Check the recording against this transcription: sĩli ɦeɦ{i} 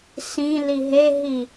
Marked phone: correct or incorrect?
correct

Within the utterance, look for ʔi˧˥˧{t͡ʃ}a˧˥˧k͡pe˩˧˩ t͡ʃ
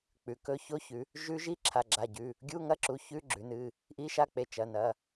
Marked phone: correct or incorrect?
incorrect: ʃ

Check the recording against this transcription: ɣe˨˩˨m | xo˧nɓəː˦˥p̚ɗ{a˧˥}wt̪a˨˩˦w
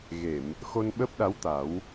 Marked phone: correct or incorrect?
correct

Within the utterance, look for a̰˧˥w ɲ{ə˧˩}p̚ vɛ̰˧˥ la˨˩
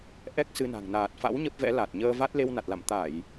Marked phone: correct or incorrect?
incorrect: ə˦˥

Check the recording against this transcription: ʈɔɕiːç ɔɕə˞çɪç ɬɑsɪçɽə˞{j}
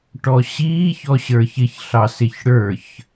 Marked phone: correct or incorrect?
incorrect: ç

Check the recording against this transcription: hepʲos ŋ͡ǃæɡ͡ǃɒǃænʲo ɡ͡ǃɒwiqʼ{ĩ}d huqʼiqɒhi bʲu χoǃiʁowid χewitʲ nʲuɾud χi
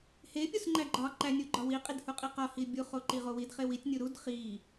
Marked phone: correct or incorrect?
incorrect: i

